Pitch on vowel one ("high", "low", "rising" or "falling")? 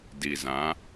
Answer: low